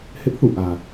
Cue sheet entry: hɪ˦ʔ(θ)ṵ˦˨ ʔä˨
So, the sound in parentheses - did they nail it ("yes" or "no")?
yes